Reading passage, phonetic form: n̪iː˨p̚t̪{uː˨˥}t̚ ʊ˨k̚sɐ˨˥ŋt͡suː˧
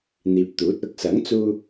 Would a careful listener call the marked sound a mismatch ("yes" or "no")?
no